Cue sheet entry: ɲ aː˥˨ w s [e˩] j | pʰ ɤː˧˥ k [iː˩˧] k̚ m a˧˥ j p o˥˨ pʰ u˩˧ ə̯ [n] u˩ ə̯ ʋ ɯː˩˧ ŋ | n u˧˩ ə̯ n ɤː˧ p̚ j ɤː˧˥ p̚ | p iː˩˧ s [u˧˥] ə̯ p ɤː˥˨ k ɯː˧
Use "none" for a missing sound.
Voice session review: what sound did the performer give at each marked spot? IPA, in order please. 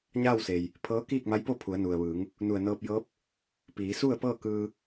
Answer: e˩, iː˥˨, n, u˥˨

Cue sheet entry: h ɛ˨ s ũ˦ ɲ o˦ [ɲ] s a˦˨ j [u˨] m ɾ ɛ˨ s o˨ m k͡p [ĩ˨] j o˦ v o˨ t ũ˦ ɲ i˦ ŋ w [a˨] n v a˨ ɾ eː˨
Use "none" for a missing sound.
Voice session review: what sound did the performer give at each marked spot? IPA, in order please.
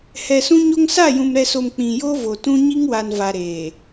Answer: ŋ, ũ˨, ĩ˨, a˨

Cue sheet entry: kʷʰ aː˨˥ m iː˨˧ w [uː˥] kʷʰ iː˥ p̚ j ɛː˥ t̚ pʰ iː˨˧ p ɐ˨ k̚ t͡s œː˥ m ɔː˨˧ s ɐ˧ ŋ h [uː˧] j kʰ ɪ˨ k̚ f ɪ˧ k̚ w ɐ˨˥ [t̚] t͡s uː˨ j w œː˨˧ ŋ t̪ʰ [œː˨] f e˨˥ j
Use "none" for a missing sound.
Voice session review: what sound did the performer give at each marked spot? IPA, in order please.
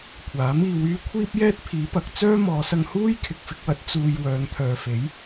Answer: yː˥, uː˥, t̚, œː˨

